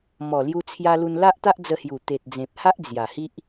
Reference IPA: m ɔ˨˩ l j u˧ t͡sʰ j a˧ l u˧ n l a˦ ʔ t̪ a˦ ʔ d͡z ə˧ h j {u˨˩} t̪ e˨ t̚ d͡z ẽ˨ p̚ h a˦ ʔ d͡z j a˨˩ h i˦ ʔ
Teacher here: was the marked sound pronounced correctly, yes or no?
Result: yes